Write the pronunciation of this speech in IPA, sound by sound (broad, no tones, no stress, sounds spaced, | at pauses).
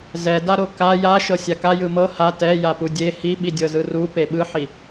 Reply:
z ɛ d a ɾ o k a j a ʃ ɤ sʲ a k a j ɯ m ɤ h a t ɛ j a p u dʲ e h i ɓ i dʲ ɤ z ɯ r u p e ɓ ɯ ħ i